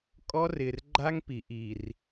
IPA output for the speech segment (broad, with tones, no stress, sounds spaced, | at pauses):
kʼ ɔ˦ r ɪ˨ r ɡ͡ǃ a˦ ŋ p i˨ ʔ i˨ r